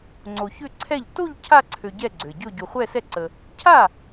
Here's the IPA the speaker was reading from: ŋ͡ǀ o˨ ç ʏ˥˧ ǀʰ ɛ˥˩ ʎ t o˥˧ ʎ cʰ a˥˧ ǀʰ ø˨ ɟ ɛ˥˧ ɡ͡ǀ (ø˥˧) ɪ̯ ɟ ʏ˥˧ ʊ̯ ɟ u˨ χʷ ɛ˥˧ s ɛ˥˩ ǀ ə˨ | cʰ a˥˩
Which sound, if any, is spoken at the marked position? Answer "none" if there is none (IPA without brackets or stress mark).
ø˨